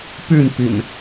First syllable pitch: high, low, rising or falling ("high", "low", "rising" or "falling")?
falling